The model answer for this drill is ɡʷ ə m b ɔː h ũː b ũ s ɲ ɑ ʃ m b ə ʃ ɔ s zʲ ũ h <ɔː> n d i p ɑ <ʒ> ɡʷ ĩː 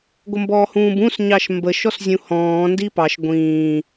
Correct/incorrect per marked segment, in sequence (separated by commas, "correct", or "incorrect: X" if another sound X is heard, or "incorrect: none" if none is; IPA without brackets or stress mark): incorrect: ɔ̃ː, incorrect: ʃ